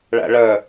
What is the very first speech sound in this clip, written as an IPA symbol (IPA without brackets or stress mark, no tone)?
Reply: ɭ